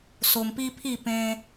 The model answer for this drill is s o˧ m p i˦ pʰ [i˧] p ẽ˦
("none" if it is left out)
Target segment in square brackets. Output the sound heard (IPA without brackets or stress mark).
i˥˧